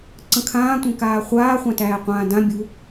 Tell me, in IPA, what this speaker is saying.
ǀ ə̃ kʰ ãː tʷ ẽ k aː χʷ aː χʷ ã t æː qʷ ãː d ã bʲ u

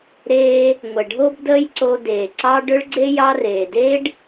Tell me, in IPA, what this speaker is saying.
ɾ eː˧ | ŋʷ ə˨ ɖʱ o˧ b d əː˦ j ǀ o˧ d eː˨ ǀ ɑ˦ ɖ ʏ˦ ɭ ɡ͡ǀ e˦ j ɑ˧ r eː˨ d eː˦ ɖ

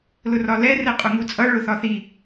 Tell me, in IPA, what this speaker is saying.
l ʊ r ɒ l ɛ r ɛ qʼ ʊ ŋ u t͡sʼ ʌ ɭ ʊ θ ɒ θ i

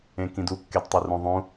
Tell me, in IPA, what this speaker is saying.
ẽ k ĩ d u kː e d tˤ o r ũ ðˤ ũ

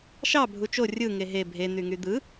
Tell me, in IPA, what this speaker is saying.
ʃ ɑ bʱ u t͡ʃ o rʲ ɯ ŋ e ɦ e bʱ e n̪ y ŋ y d̪ ɯ

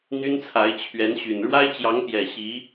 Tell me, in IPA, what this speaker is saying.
n̪ y˥ n t͡sʰ a˧˥ ɪ̯ t͡ɕʰ ɥ ɛ˧˥ n ɕ y˨˩ n ɻ w a˥ ɪ̯ t͡ɕ j ɑ˧˥ ŋ p j ɛ˨˩ ɕ i˧˥

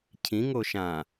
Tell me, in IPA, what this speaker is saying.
cʰ ĩ ŋ o ʃ ã

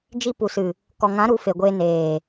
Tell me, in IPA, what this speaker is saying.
d͡ʒ i˧ p u˨ s ɨ˨ | k ɔ˨ ŋ ã˨˦ ɾ u˨˦ f e˨ ɡʷ eː˧ n eː˨

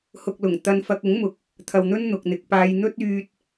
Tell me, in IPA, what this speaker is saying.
h ʊ˨ k̚ l ʊ˨˩ ŋ t̪ ɐ˧ n f ɐ˧ k̚ ʊ˨˥ ŋ m ʊ˨ k̚ | t̪ʰ ɐ˨ w n̪ ɵ˥ n n̪ ʊ˨ k̚ n̪ ɪ˨ k̚ p aː˧ j n̪ ɵ˥ t̚ yː˧ t̚

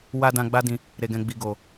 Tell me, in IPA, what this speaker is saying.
w a˧ d ã˧ ɡ͡b a˦ d ĩ˧ | ɾ e˨ ɡ ɛ̃˨ ɡ͡b i˨ ɡ o˨

